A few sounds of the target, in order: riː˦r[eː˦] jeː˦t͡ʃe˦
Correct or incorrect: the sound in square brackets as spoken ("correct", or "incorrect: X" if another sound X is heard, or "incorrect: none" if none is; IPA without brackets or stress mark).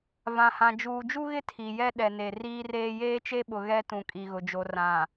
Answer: correct